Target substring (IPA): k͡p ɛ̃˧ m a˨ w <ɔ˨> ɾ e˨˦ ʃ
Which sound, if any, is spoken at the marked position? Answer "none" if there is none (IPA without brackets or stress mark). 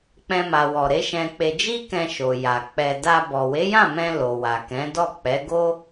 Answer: ɔ˨